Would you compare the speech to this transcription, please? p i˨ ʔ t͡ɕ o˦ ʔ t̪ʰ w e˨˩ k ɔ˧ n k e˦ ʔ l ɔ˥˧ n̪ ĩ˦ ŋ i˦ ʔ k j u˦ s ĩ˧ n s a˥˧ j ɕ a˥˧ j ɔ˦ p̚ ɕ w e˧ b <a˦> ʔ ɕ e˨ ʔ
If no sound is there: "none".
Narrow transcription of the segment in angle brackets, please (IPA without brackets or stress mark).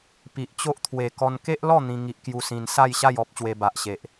a˨